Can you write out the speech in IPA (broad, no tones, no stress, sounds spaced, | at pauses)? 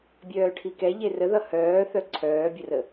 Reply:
bʲ œː ʈʰ i k ɛ ʎ e r ə ð ʌ h œː θ œ ǀʰ œː bʲ ə r ə